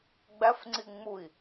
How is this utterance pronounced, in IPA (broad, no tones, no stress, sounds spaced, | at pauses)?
ɡ͡b æ f ŋ͡ǀ i ŋ͡m u i̯